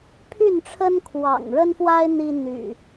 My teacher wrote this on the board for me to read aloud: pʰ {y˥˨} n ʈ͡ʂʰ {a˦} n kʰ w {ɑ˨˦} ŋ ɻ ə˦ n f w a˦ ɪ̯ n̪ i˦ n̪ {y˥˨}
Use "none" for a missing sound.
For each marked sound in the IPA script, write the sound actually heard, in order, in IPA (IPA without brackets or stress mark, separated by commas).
y˥˨, ə˦, ɑ̰˨˩, y̰˨˩